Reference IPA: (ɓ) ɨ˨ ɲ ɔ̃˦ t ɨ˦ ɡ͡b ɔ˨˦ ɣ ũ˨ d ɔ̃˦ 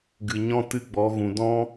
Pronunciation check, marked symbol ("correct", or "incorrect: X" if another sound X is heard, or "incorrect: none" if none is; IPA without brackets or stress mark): incorrect: ɡ